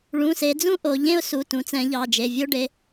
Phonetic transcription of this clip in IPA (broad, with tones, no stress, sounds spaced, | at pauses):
ɭ ũ˩˧˩ s e˩˧ d͡z ũ˦ ʔ o˩˧ ʎ ẽ˦ ʊ̯ s u˩˧˩ t ũ˩˧ t͡s ɛ̃˩˧ ʎ ɑ˩˧˩ d͡ʒ e˩˧˩ vʲ o˦ ɖ e˩˧˩